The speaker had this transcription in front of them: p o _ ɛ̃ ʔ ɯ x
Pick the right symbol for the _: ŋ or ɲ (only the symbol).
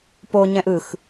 ɲ